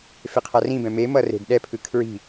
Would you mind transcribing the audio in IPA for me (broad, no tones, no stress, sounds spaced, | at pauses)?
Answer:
f e qʰ a r ĩ b ɛ̃ m e m ʌ r e̤ d ɗ ɛ pʰ ɯ kʰ ɹ i̤